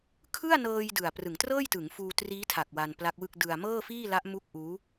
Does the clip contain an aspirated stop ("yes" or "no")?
yes